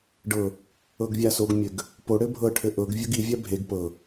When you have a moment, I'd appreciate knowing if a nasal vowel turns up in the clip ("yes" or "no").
no